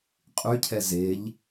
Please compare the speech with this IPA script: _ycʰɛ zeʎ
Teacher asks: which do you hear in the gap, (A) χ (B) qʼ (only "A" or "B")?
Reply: B